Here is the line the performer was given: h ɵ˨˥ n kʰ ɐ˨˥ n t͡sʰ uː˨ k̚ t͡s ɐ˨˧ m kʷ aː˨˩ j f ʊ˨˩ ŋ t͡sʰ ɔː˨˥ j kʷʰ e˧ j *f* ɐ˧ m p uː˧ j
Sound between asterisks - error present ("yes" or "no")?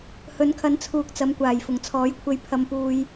yes